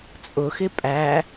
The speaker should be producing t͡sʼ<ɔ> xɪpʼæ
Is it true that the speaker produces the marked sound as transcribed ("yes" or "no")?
no